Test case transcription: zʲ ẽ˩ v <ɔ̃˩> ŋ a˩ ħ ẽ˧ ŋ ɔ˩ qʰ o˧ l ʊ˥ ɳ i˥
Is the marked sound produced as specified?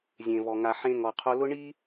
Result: no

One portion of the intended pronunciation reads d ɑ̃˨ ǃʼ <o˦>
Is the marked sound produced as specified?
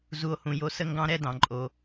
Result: no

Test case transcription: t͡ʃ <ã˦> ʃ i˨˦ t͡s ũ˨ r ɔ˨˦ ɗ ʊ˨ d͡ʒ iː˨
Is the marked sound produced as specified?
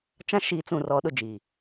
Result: yes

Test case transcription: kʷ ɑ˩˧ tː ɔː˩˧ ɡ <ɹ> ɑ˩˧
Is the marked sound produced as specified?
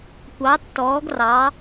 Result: no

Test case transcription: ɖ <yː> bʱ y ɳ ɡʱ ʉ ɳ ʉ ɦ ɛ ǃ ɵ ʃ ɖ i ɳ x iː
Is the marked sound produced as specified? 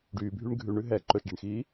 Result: yes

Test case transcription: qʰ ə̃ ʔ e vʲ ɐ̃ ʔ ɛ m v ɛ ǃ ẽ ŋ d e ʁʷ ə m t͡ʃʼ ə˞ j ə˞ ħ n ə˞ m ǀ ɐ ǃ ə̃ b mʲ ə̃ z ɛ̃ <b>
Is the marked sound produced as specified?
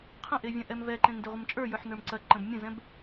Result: yes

